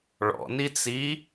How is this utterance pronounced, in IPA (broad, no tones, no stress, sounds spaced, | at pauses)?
ɭ ɔ̰ n i t͡s i